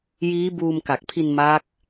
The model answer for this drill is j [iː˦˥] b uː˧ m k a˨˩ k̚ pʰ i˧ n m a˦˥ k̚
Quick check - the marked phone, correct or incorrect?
correct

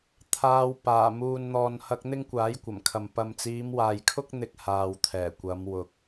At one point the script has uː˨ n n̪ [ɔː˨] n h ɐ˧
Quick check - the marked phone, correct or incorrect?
correct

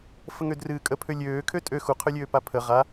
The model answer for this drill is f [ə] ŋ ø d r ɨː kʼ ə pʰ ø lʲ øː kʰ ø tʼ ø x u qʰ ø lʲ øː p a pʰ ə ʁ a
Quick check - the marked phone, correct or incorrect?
correct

